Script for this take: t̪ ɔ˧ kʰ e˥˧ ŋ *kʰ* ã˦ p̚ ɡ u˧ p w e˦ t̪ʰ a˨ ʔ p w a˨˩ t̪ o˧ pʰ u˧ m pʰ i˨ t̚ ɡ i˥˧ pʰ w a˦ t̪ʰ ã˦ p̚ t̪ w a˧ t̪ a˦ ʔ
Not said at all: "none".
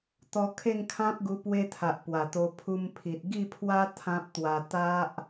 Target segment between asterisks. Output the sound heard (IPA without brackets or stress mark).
kʰ